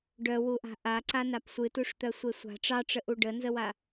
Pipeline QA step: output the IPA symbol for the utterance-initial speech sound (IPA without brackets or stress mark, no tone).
ɖ